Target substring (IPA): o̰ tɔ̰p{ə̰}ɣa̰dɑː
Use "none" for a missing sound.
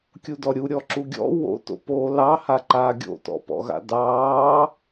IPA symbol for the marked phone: ɔ̰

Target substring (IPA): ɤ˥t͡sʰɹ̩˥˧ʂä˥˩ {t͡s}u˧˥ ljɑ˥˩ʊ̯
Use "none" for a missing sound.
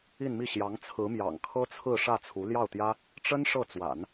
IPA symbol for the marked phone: t͡sʰ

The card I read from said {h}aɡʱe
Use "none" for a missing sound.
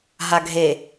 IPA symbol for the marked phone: ɦ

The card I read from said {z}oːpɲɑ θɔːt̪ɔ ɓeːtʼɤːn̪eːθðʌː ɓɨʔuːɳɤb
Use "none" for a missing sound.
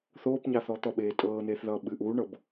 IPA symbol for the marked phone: θ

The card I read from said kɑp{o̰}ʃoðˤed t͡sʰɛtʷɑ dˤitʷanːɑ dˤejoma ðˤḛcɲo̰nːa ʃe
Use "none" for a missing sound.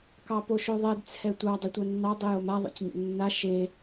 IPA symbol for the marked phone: o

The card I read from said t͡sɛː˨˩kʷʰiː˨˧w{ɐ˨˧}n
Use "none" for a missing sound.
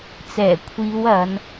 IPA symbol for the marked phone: ɐ˨˧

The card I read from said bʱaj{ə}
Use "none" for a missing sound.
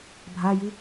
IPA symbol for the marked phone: ɨ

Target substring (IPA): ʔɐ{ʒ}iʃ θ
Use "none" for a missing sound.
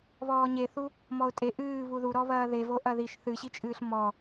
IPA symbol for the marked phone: ð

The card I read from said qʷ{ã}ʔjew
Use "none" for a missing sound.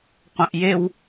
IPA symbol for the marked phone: ã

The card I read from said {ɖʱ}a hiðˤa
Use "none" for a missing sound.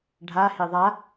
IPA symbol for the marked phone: ɖʱ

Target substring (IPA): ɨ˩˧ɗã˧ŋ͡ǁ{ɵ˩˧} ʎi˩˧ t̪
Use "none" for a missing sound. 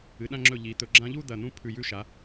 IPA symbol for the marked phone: ɵ˧˩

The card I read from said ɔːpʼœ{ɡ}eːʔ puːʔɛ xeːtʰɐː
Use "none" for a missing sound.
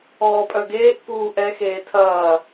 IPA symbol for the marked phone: ɡ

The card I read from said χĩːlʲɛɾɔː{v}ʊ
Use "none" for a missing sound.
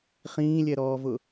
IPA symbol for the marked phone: v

